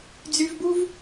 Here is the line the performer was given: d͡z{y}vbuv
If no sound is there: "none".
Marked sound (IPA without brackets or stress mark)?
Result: y